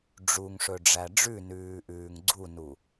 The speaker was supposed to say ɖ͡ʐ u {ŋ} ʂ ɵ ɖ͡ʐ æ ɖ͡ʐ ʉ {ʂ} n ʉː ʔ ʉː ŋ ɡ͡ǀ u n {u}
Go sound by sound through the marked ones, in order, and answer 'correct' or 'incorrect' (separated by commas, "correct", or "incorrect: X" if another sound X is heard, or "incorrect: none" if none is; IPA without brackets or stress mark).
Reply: correct, incorrect: none, correct